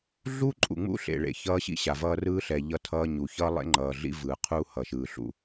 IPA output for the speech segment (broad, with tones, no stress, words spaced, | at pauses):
ɮu˦ǃʼṵ˨ŋ͡mṵ˦ ɬḛ˨ɭḛ˨ çʌː˦ɕḭ˦ɕa˨vʌː˦ rɯː˦ɬɛ˨ ʎʌ˦tʰʌː˦ɲu˨ çʌː˦lˠḛ˦ ŋ͡ǃʌː˨ɮḭ˦ vɯː˨qʰuː˦ hʌ˨ʃɯː˨ɬṵ˦˨